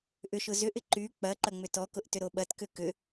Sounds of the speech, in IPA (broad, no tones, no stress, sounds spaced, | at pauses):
ʔ ʏ ʃ ʊ z ʏ ʔ ɪ ǃ y k͡p ɐ ǃ ɐ ŋ͡m ʏ t ɔ k ʊ ʔ t ʏ ɾ o ɓ ɐ t k ʏ k ʏ